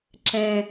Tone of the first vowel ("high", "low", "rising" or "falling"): low